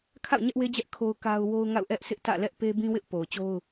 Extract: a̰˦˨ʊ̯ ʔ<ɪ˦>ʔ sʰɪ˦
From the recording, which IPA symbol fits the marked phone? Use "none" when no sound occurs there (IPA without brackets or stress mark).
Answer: ɛ˦